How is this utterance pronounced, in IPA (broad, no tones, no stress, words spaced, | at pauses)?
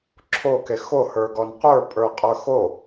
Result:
ǁʰoke xohə˞ɡɔn qʷə˞pʼə˞qʼə˞ xo